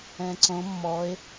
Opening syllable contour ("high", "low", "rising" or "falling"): low